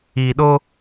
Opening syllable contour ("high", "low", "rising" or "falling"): low